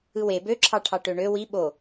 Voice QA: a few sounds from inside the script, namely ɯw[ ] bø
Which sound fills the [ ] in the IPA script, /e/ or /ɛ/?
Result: e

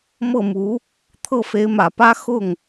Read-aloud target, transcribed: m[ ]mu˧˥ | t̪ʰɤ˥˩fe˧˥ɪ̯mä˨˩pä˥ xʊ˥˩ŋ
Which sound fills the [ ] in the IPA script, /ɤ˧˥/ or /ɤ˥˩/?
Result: ɤ˥˩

